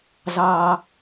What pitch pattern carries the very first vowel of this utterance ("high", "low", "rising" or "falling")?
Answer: low